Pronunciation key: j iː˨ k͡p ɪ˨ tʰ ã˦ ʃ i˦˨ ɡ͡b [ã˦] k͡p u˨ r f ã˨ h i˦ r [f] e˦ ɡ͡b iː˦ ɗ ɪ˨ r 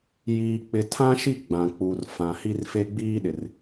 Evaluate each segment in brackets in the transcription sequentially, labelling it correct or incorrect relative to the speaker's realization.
incorrect: ã˨, correct

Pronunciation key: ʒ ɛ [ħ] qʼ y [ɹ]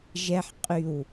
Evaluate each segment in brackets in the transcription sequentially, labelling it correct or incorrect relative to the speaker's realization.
correct, incorrect: w

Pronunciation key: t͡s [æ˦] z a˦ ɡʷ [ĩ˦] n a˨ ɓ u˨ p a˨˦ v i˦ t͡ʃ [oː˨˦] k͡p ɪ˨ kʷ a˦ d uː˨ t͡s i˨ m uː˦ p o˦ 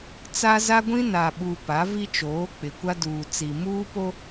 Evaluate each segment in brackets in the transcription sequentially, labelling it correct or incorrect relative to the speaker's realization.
incorrect: a˦, correct, correct

